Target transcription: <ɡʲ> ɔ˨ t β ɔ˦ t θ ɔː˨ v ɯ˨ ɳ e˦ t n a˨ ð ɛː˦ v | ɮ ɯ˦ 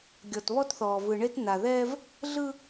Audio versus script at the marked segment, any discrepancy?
no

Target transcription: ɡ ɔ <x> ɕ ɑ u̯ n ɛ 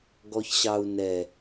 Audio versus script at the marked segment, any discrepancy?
yes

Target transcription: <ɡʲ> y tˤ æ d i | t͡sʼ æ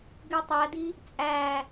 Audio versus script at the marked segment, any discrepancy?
yes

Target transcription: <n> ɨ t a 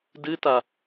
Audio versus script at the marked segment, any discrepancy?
yes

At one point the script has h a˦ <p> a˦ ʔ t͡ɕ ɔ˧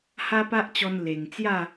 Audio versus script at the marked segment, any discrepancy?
no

